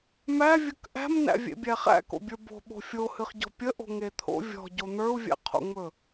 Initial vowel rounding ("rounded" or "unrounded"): unrounded